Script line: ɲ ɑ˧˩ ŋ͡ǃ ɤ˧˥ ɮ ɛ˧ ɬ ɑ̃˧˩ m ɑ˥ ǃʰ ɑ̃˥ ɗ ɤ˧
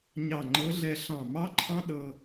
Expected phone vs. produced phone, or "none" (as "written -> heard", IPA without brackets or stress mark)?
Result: none